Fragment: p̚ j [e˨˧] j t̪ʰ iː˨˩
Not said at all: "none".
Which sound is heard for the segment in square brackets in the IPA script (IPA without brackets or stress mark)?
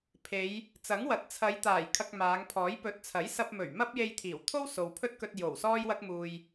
e˧